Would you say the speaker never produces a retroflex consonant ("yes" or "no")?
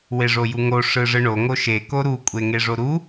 no